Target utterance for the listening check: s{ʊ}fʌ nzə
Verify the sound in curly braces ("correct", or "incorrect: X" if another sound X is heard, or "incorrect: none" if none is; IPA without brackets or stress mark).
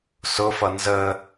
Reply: correct